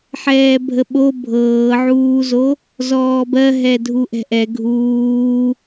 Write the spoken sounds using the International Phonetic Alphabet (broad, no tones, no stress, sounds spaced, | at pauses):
ħ ɛː bʱ ə ɓ o bʱ ɤː ʕ uː z o | z ɔː b ɜ ɦ ɛ dʱ u ʔ ɛ̤ ʔ ɛ ɡʱ uː